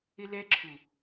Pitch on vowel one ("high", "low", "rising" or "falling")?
high